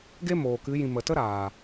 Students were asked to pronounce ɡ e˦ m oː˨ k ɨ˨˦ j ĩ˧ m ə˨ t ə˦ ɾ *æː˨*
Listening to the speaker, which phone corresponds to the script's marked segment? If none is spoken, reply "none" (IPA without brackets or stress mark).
aː˨